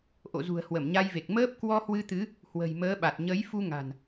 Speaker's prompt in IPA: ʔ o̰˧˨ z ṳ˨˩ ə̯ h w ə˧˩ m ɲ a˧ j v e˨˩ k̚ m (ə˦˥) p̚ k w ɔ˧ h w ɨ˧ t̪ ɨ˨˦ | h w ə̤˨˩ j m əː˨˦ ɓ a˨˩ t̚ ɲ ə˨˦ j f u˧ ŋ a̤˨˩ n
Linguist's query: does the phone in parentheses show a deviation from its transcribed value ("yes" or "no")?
yes